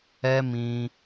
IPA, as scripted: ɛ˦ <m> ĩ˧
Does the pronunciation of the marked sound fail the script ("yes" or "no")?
no